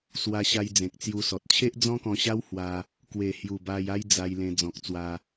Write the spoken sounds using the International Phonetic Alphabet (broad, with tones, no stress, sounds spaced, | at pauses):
s w a˧ ɕ a˧ j d͡z ẽ˨ k̚ t͡s j u˧ s ɔ˨ t̚ t͡ɕʰ e˦ ʔ d͡z ɔ̃˦ k ɔ̃˧ ɕ a˦ w h w a˧ | k w e˨˩ h j u˨˩ b a˧ j a˦ j d͡z a˧ j l ẽ˧ d͡z ɔ̃˨ k̚ t͡s w a˧